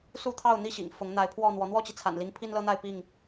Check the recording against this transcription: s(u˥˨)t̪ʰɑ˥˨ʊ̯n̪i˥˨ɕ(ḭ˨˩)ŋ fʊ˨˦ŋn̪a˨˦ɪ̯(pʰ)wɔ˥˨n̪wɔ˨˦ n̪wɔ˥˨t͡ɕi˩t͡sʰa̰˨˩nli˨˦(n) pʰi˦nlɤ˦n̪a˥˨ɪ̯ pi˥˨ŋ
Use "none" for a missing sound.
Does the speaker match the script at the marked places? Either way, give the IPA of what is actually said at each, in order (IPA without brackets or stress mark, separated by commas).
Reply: u˥˨, ḭ˨˩, pʰ, ŋ